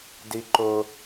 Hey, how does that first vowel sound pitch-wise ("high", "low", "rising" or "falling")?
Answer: high